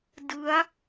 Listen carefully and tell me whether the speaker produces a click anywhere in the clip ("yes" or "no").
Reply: no